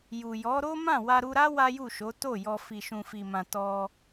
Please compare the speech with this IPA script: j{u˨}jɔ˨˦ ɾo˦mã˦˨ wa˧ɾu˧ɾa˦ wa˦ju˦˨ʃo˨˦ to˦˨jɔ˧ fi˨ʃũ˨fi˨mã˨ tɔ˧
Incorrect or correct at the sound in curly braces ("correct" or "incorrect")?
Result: correct